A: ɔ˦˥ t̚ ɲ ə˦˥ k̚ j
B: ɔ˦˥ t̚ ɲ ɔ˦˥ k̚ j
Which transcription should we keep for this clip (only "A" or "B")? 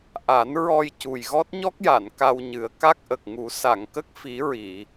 B